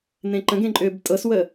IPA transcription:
nẽǃə̃ɡẽ ǃʼʏːbtʼɤswəː

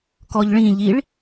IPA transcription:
kɔʎɭĩʎiɭ

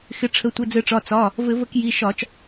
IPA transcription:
xɪ˩˧˩ ʈ͡ʂʰə˩˧˩tʷɘ˩˧˩d͡zɘ˧˩˧ʈ͡ʂɒ˩˧˩ t͡sɒ˩˧˩ | vɘ˧˩˧ və˧˩˧k ji˩˧˩ʃɒ˧˩˧t͡ʃ

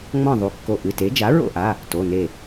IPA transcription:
ŋ͡mɔ̃˥˨ðˤu˩˧˩kːo˧˩ ʔɨ˩˧˩te˩˥ d͡ʒa˩˥ɹo̰˥˨ʔa˩˧˩ | to˩˧˩ne˧˩

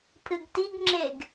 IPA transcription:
pʰɨɡtiɡŋ͡ǁeɡ

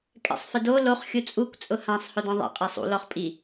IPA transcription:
kʼɛ̰sˤfɪdo loχ xʲut͡sʼukʷ t͡sʼʊhãsˤ hʊdɔ̃ðˤɛ̰ qʼesˤṵ lɔχpʼi

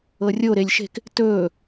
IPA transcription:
ɤrʲo ɾelʲʃe̤k | tɵː

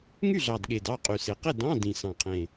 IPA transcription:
ŋy˥˨ɮɑ˨˩dɠe˨˩d ɑ˥˨ qʼy˨˩se˨˩qe˥˨ dɑ̃˧˥˧dĩ˨˩ sɑ̃˨˩qʰẽ˨˩

